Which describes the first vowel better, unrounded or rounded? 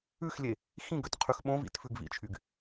rounded